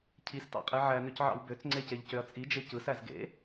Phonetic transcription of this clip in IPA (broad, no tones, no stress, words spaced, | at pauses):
cʰistɑ̰qʼe ʕænøcʕɑ̰w bøt͡sŋ͡ǀeceʎcøɐ̯ t͡sʼid͡ʒe cɯsæz ɡḛ